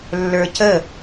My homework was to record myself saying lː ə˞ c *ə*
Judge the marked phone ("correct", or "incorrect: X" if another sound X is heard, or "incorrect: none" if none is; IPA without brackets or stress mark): correct